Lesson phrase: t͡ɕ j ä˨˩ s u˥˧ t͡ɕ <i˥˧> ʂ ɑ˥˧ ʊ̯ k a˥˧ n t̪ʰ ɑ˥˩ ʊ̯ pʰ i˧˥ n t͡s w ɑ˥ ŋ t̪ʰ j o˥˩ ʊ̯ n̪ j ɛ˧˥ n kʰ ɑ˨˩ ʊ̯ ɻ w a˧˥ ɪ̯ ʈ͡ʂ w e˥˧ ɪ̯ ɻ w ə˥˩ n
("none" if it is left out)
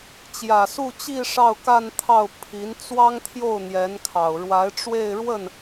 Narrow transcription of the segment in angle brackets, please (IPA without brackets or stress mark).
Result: i˥˧